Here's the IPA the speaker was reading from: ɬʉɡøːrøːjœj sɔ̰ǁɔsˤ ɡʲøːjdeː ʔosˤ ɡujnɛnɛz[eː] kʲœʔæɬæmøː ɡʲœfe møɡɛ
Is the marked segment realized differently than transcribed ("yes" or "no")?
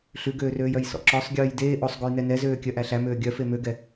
yes